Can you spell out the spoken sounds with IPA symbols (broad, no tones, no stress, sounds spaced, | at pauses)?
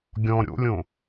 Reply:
ɡʲ ɔ̃ ɾʲ o̰ lʲ õ